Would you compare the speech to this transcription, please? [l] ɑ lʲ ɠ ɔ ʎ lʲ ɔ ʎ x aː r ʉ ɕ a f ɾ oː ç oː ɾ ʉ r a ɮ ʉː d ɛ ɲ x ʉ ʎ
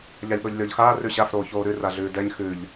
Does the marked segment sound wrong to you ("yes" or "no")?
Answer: yes